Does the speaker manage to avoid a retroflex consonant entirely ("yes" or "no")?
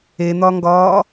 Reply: yes